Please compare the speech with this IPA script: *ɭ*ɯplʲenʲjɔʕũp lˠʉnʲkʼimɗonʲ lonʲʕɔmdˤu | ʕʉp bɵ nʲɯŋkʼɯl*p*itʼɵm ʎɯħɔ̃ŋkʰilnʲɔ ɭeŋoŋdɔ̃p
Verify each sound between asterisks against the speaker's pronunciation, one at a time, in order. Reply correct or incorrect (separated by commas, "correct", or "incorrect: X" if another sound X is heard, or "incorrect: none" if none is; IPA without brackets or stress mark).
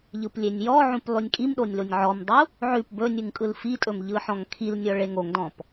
incorrect: ʎ, incorrect: f